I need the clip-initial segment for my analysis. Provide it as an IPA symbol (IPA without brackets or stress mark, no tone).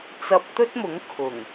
t͡s